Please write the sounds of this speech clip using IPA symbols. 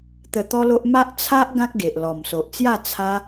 t̪ə˧t̪ɔ˦lo˦ʔ ma˦ʔt͡sʰa˦ʔ ɡã˦k̚ɡe˨ʔ lɔ˨˩mso˨ʔt͡sja˥˧ t͡sʰa˧

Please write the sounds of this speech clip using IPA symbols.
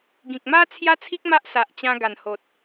ɡĩ˨k̚ma˦ t͡sʰja˦t͡sʰi˦k̚ ma˦ʔsa˨ʔt͡ɕã˧ ɡa˨˩nho˨t̚

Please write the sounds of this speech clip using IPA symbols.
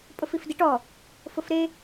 pʼʊfifdiʈɔ | fʊfɾe

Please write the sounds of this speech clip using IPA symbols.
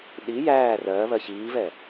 ɗi jæː rɜβɜ çiːvɛ

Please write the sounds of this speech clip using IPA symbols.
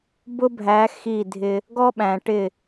bʊ˦bʱæ˨˦ xi˦˨dʱɪ˦ | ɡɔ˦ɓæ̃˨ ʈɪ˦˨

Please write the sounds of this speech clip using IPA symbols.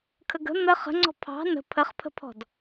kʰəɡə̤ n̪ə χə̤ŋ͡ǀɔ̤ pʰɑ̤ nə̤ pʰəχpʰə̤pʰɔ̤d

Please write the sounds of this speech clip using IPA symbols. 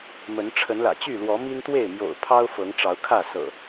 mə˨˦n ʈ͡ʂʰə˨˦nlä̰˨˩t͡ɕy˥˨lwɔ˨˦ mi˦nt̪we˥˨ɪ̯mjo̰˨˩ʊ̯pʰɑ˦ʊ̯ fɤ˨˦ŋʈ͡ʂɑ˨˦ʊ̯kʰä˥˨ sɤ̰˨˩

